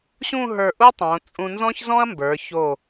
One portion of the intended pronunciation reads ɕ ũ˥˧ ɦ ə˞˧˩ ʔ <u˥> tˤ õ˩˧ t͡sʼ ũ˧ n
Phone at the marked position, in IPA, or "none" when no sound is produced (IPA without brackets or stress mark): u˥